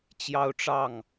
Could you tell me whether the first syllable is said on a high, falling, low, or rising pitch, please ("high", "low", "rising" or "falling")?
high